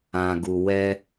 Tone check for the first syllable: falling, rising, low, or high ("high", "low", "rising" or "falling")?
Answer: low